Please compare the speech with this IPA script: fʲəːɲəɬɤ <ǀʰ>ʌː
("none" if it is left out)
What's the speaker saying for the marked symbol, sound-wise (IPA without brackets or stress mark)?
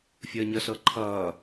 ǃʰ